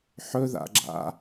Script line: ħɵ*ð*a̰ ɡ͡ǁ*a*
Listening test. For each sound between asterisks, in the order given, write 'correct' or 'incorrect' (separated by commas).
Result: correct, incorrect